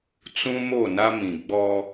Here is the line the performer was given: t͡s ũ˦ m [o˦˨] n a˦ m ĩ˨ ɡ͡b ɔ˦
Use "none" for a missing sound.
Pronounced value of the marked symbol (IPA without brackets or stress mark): o˦˨